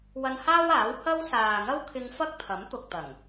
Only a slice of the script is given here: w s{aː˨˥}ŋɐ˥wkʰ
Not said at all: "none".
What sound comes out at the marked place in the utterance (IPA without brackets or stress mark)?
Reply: aː˨